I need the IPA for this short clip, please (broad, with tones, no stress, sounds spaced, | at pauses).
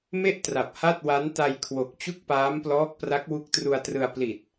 m e˥˩ ʔ t r a˨˩ p̚ h a˥˩ t̚ w a˦˥ n t a˧ j kʰ w o˨˩ k̚ t͡ɕ u˥˩ k̚ p aː˦˥ m p l ɔː˦˥ k̚ p r a˦˥ k̚ w u˦˥ k̚ t r u˧ a̯ t r ɯ˧ a̯ p l i˨˩ t̚